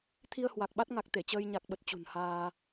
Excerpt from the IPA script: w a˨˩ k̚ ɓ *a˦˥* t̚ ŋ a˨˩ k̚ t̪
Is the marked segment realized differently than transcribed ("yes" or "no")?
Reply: no